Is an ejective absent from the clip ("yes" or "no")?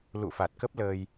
yes